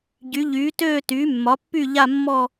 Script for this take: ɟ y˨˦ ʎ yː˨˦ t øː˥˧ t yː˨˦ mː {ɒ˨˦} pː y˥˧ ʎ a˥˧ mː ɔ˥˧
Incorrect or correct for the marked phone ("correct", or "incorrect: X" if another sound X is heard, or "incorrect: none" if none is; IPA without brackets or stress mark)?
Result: correct